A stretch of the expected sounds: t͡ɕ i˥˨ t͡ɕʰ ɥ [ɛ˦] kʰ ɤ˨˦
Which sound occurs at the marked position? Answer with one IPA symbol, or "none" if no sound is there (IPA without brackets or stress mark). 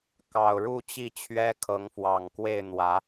ɛ˦